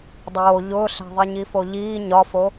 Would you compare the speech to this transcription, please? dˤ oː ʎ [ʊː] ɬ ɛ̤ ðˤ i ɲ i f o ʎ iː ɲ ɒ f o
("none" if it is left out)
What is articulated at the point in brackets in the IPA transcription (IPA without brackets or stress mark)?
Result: ʊː